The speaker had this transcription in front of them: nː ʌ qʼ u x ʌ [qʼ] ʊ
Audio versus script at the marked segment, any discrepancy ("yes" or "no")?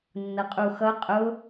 no